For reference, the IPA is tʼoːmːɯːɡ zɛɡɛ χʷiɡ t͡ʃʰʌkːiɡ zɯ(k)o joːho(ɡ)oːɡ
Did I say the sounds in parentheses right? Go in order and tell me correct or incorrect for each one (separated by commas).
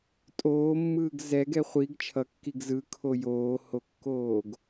incorrect, incorrect